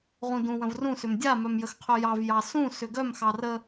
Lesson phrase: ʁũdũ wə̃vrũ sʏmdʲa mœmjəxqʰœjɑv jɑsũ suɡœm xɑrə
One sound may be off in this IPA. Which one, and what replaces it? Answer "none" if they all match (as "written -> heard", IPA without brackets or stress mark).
u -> ʏ